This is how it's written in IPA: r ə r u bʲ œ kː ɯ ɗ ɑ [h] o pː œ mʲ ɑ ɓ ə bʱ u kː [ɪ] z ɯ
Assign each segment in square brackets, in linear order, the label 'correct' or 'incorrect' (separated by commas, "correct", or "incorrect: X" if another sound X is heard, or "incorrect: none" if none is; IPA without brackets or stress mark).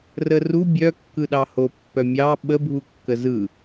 correct, incorrect: ə